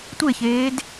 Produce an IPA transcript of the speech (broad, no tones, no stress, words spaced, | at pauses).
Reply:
tʷeçeːd